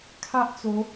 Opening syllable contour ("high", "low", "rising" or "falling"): high